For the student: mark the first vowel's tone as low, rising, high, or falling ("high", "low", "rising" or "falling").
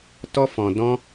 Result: high